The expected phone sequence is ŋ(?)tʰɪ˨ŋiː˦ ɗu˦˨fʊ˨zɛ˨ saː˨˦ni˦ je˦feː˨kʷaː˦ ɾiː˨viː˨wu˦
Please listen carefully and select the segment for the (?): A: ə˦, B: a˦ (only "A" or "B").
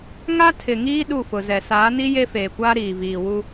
B